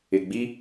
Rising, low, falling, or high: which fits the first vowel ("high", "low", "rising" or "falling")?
low